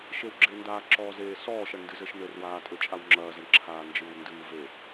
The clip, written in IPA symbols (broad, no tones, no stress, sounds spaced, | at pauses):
ʃ e w ɡ͡ǁ e n d aː ǁ ɔː z eː s ɔː ʃ ɐ ɳ n d ɨ z ɘ ʃ n ɘ r w aː tʼ ɘ t͡ʃʼ a w ŋ͡ǁ ɐː z ɐ ɳ ǁʰ aː n d͡ʒ ɨː w n d ɨː v e